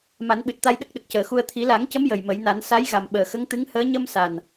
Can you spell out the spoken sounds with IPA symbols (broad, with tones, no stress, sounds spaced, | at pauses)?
m a˨˩˦ n ɓ ɨ˨˩ t̚ t̪ a˧ j ɗ ə˦˥ k̚ ɗ ə˨˩ k̚ c əː˨˩ x u˧ ə̯ t̪ʰ i˨˩˦ l a˨˩˦ ŋ c ə˧˥ m j ə˨˩ j m ə˨˩˦ j n a˨˩˦ n s a˧˥ j ɣ a˨˩ m ɓ əː˨˩ x ə˧˥ ŋ t̪ ɨ˧˥ ŋ h əː˧˥ ɲ ə˧ m s a˨˩ n